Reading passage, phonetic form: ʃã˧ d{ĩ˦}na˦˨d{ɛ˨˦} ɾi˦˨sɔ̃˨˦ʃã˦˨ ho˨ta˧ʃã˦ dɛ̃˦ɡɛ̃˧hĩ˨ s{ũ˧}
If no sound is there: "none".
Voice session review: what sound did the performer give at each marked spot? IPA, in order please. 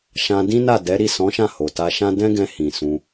ĩ˦, ɛ˨˦, ũ˧

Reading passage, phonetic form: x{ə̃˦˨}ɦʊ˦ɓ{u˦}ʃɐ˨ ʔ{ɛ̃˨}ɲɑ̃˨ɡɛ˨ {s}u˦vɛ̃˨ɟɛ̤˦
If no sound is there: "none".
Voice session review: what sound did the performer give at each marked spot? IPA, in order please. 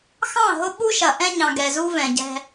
ɑ̃˦˨, u˦, ɛ̃˦, z

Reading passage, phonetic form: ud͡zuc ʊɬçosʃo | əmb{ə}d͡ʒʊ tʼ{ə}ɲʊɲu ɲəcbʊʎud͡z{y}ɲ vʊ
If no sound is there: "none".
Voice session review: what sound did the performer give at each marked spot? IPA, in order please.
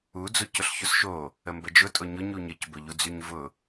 ə, ʊ, y

